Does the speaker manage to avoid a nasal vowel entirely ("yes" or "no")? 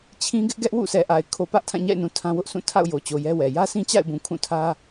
no